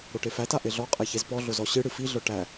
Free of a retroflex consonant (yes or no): no